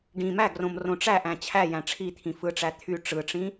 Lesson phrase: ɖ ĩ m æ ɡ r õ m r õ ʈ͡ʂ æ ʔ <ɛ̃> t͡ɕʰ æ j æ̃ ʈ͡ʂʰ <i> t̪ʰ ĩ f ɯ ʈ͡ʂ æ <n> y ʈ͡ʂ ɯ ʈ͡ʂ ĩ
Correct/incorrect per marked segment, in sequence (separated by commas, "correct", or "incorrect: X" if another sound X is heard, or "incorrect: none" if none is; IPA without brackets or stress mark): incorrect: æ̃, correct, incorrect: t̪ʰ